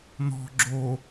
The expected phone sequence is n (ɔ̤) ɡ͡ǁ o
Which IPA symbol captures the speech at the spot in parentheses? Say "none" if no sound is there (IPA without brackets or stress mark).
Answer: ɔ̤